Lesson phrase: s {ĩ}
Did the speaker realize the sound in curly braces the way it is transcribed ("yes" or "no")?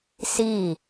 no